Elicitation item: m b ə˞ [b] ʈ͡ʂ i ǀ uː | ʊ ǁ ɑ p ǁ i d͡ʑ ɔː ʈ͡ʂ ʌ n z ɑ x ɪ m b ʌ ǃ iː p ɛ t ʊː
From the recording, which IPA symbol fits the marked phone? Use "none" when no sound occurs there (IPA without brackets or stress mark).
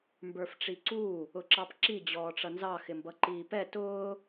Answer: f